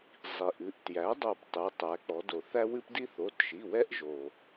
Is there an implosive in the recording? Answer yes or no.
no